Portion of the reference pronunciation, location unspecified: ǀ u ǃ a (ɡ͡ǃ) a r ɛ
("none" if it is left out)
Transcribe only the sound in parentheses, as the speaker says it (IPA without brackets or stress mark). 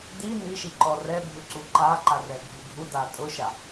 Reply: ǃ